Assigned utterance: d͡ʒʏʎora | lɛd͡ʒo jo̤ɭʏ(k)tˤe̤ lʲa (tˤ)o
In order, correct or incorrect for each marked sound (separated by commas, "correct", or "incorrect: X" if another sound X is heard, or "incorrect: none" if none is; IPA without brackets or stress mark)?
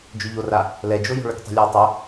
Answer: correct, correct